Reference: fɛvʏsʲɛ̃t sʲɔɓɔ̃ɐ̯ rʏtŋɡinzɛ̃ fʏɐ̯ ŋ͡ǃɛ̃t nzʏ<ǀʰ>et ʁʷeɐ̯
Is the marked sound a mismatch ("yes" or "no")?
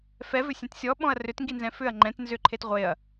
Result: yes